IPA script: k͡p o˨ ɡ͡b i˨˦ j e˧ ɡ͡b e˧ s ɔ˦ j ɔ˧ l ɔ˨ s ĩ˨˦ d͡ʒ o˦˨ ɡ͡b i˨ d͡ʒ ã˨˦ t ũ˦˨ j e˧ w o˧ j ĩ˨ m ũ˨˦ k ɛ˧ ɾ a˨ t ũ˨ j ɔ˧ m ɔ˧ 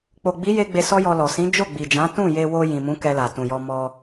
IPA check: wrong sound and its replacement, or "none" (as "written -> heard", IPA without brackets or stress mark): ɾ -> l